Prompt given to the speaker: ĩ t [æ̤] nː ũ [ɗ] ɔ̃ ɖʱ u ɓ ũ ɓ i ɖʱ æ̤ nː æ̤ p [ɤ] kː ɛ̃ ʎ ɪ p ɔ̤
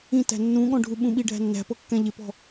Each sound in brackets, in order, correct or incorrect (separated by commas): correct, incorrect, correct